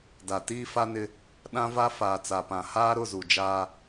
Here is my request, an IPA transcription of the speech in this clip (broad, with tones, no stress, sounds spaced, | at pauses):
d a˨ t iː˦ f a˦ n ɪ˦ | ɗ ã˦ v a˦ f aː˨ t͡s a˨ p ã˨ h aː˦ ɾ ʊ˦˨ z u˨ d͡ʒ aː˦